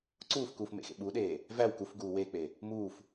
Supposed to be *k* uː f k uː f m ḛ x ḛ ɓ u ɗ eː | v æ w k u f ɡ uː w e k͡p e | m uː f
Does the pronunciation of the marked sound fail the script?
yes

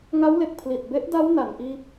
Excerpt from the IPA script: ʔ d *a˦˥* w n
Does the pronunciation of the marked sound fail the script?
no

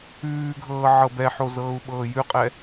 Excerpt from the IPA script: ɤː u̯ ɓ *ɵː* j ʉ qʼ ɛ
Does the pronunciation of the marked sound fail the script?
yes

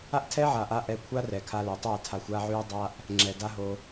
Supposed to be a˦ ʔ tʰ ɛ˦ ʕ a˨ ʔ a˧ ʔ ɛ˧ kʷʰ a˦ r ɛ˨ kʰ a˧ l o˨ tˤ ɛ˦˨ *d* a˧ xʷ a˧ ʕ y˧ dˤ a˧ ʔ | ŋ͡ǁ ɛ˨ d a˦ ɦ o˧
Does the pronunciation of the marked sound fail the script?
yes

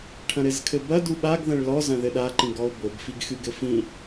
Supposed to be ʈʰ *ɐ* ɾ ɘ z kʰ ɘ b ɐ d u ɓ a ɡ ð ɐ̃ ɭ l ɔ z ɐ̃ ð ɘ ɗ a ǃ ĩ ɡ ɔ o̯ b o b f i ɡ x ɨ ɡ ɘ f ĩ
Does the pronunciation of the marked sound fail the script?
yes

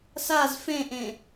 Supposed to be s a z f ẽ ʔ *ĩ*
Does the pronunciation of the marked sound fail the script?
yes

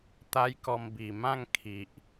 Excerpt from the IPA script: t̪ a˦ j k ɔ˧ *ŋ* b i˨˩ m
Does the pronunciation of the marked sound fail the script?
yes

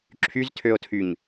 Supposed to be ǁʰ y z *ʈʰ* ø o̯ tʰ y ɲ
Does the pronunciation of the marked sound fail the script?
yes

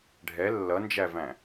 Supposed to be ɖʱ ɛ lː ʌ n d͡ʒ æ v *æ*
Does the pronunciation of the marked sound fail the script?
yes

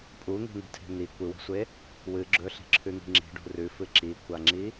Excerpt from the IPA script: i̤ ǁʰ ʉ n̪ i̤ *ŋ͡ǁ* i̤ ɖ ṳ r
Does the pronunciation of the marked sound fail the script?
no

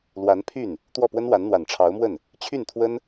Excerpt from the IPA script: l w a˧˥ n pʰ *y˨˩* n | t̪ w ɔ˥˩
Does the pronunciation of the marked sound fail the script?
yes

